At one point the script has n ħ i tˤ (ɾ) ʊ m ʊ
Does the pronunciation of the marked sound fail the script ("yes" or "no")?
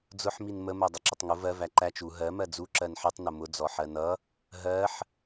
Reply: yes